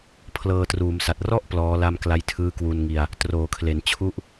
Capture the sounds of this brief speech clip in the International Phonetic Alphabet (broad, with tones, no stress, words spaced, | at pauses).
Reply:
pʰlɤː˧truː˩˦msa˨˩t̚ rɔ˥˩ʔ plɔː˦˥la˥˩m kla˦˥jtʰɯː˦˥kwu˧nŋi˧a̯ | troː˩˦kʰle˩˦n t͡ɕʰu˥˩ʔ